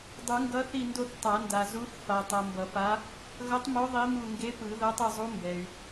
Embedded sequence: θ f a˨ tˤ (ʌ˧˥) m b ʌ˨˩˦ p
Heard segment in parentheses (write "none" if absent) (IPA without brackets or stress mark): ʌ˨